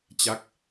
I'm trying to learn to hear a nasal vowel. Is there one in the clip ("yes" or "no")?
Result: no